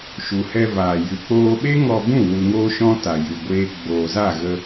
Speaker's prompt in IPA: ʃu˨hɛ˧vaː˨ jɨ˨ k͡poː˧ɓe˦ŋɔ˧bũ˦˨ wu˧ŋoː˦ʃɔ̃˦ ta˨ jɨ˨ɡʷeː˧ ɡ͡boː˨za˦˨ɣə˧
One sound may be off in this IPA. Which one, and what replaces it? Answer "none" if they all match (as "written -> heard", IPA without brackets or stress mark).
none